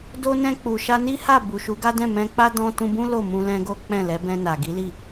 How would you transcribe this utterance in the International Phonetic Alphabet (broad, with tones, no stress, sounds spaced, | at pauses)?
d o˧ n ɛ̃˧ k͡p u˨ ʃ a˧ n i˦ h a˦˨ b u˨ ʃ u˨˦ ɡ a˦ d ɛ̃˦˨ m ɛ̃˧ k͡p a˦ d ɔ̃˧ t ũ˧ b ũ˦ l o˦˨ m ũ˧ l ɛ̃˧ ɡ o˦ k͡p ɛ̃˦˨ l ɛ˨˦ b ɛ̃˧ n a˨ ɡ i˨˦ l i˦˨